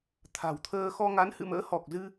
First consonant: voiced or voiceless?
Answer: voiceless